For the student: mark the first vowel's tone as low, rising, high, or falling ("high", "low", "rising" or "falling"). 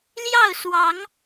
falling